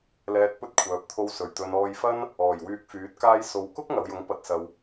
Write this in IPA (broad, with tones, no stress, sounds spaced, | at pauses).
l ɛː˧ t̚ p ɵ˥ t̚ kʷʰ œː˨ p̚ t̪ʰ o˧ w s ɵ˨˩ ɥ t̪ ɵ˨ n ɔː˧ j f ɐ˥ n | ɔː˨˩ j w yː˧ k̚ f yː˨˥ t̚ k aː˥ j s o˧ w k ʊ˥ k̚ ŋ ɐ˨˧ w j ʊ˨˥ ŋ p ɐ˧ t̚ s ɐ˧ w